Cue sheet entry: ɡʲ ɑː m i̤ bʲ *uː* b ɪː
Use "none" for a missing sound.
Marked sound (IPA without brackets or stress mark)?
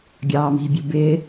u